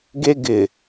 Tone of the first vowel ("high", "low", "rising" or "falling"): high